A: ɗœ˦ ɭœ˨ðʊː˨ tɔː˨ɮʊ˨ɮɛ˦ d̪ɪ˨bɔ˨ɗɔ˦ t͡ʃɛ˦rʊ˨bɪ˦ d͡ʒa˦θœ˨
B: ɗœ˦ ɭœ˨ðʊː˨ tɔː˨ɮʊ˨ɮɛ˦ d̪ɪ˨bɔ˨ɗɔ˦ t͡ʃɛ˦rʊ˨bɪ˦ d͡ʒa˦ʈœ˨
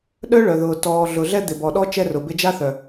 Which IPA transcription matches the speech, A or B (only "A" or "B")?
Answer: A